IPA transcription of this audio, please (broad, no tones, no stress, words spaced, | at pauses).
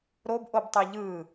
ɾobʔob tˤiʎɯ